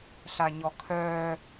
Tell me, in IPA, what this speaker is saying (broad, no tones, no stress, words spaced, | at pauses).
ɬaɲɔkʰœː